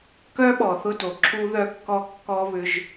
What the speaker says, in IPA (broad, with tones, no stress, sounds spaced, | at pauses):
k œ˦ ɓ ɔ˨ θ ʊ˦ d o˨ ǁʰ u˦ ð œ˦ kː ɔ˦ kː ɔ˦ β ʏ˦ ʒ